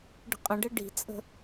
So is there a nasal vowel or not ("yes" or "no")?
yes